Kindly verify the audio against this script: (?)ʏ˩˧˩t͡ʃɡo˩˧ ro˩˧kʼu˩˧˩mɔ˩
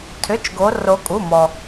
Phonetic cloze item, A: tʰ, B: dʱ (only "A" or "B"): A